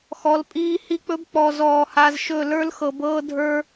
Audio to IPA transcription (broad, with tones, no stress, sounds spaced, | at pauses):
x ɔ˨˦ l pʼ iː˦ h i˦ k͡p ɵ˦ b k͡p ɔ˨ z ɔː˨ h a˨ z ʃ ɵ˦˨ l ə˞˦ l x ɤ˨ b ɤː˦ dʱ ə˞˦